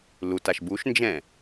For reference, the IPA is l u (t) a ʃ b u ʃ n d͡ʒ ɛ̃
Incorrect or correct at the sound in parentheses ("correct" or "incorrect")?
correct